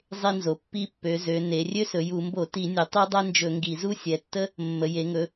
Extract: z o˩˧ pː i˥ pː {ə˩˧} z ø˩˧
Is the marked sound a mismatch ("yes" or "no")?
yes